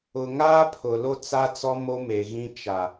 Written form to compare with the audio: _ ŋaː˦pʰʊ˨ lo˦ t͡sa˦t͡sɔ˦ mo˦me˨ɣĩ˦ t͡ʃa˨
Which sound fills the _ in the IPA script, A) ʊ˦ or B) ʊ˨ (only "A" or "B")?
B